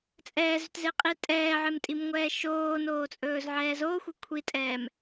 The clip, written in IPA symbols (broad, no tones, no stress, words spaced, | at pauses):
t͡sʼɛːzʏtzeqʼi tʼɛːʕemtʼimŋʷɛː ʃoːnoːt͡sʼɵːzʕɛː zoxʷe kʷʰitʼɛːm